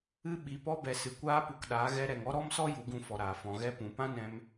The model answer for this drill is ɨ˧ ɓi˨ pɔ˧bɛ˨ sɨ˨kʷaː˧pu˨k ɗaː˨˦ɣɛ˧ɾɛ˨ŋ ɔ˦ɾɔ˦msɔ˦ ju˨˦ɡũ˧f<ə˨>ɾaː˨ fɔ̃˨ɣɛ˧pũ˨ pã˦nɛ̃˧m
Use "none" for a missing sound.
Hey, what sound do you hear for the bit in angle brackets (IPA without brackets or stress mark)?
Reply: ɔ˨